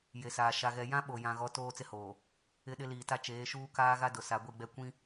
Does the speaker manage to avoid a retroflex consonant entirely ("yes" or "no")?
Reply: yes